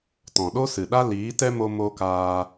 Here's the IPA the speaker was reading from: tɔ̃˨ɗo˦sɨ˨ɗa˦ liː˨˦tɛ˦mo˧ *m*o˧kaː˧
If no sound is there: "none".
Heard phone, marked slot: m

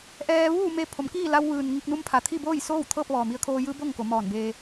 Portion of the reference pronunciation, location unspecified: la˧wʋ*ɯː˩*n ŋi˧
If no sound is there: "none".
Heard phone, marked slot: ɯː˩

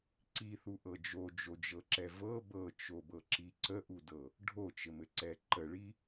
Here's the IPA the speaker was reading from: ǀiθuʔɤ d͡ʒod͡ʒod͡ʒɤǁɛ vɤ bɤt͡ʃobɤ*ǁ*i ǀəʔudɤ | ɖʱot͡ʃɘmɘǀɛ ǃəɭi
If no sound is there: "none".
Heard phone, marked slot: ǁ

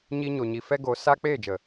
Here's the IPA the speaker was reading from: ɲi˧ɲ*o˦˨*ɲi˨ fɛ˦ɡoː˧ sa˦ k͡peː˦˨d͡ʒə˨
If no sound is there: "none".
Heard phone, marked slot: o˨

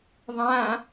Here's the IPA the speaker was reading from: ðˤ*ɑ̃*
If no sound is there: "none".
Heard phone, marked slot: ã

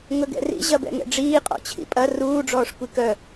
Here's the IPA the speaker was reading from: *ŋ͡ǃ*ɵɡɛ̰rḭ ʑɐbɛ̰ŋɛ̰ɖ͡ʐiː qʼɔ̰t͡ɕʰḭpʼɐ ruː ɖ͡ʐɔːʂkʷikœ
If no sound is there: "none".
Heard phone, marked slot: ŋ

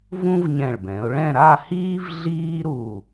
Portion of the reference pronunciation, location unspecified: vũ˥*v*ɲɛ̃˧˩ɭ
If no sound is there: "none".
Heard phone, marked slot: v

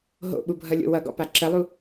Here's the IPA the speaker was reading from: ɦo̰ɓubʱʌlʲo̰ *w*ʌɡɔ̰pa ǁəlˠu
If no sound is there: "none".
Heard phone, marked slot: w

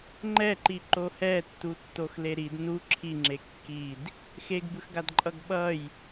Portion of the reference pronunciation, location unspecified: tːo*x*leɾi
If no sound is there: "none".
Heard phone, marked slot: x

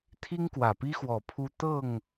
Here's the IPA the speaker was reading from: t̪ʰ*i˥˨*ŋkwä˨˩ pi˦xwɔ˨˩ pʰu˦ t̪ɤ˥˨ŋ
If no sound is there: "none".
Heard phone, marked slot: i˦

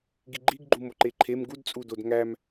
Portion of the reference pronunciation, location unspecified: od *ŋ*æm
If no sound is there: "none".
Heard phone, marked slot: ŋ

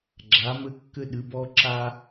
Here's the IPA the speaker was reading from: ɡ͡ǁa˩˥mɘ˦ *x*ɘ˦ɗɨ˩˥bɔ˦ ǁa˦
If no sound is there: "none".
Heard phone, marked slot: kː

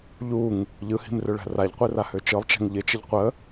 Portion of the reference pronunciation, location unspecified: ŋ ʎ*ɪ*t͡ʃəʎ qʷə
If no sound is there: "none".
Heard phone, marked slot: ɪ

